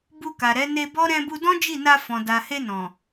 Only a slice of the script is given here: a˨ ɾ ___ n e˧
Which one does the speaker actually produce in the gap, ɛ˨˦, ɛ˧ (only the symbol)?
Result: ɛ˨˦